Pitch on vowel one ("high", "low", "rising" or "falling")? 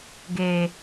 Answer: high